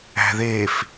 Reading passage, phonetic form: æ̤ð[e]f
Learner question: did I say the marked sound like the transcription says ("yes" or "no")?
yes